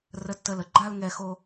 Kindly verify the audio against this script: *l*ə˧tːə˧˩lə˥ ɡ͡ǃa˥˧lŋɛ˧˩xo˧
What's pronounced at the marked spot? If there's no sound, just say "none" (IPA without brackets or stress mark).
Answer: r